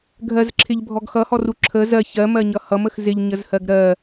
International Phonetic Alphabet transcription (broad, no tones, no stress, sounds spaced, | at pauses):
ɡʱ ɜ z ǁʰ ɪ ʎ bʱ ɔ ɡ x ʌ h ɔ r u ǁʰ ə z ɜ ç ɜ m ɜ ɲ ʌ h ʌ m ə x z ɪ ʎ ɲ ə z h ɜ ɡ ɾ ɜ